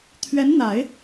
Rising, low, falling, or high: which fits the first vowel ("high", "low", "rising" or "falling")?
rising